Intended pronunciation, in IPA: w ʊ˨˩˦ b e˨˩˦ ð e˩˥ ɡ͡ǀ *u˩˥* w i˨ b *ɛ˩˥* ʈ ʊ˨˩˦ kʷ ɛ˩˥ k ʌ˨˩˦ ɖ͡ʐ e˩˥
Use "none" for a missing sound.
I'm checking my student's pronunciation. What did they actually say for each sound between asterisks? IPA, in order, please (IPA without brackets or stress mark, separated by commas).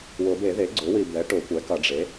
ʊ˩˥, ɛ˩˥